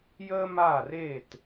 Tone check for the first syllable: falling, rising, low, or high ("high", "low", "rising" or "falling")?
high